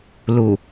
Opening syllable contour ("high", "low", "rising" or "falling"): low